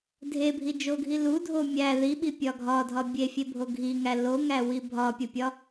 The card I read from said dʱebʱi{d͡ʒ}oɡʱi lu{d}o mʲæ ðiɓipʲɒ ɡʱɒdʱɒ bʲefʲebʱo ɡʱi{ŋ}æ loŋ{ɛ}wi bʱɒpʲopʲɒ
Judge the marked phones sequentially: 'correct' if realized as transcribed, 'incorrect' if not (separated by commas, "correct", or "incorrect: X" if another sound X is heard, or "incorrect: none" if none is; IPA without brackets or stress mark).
correct, incorrect: dʱ, correct, incorrect: æ